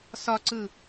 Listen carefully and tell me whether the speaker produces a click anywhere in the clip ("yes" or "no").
yes